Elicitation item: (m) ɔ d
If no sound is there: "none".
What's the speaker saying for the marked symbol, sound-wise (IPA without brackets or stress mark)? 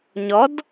ɲ